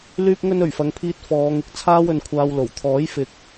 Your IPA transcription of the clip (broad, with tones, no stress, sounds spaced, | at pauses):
l yː˧ p̚ ŋ ɵ˧ n ɵ˨˩ ɥ f ɐ˨ ŋ pʰ iː˧ t̚ f ɔː˨˧ ŋ ɪ˨ k̚ t͡sʰ aː˥ w ɵ˨ n kʷʰ aː˧ w l o˨˩ w t̪ʰ ɔː˨˥ j f ɪ˨ k̚